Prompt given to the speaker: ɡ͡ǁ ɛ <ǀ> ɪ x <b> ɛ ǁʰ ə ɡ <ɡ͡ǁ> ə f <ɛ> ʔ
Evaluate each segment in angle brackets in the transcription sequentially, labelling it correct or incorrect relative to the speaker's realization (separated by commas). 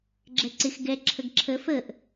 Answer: correct, incorrect, incorrect, incorrect